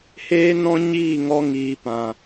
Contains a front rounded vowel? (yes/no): no